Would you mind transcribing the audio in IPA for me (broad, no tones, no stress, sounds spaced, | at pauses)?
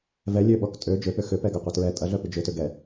v ɛ lʲ ø ɓ ɔ k tʼ ø d͡ʒ ø p ʏ x ʏ p ɛ ɡ ɐ qʷ ɐ t ɹ ɛ tʼ ɐ ɮ œ p y d͡ʒ ʏ t ʏ ɡ ɛ